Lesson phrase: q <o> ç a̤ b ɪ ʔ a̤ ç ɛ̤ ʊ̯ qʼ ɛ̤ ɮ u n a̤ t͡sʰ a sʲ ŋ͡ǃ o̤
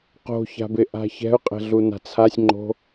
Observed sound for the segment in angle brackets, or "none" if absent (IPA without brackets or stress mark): o̤